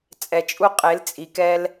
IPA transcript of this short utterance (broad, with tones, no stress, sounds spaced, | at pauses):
t͡sʼ ɛ˧ t͡ʃʼ u˦ qʼ e˨˦ l t͡sʼ i˧ k ɛ˦ l